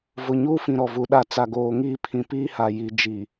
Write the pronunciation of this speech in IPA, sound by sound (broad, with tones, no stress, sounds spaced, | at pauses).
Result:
v ʊ˨ ɲ uː˦ f ĩ˨ ɾ ɔ˨ v u˨ ɗ a˦˨ t͡s a˨ ɡ oː˨ ŋ iː˦ pʰ ĩ˨ p iː˦ h a˨ j i˨ d͡ʒ i˨